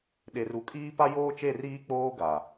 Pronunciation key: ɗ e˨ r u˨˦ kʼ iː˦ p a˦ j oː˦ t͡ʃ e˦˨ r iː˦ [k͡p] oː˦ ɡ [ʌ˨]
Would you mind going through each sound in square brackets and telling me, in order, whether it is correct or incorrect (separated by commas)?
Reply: correct, incorrect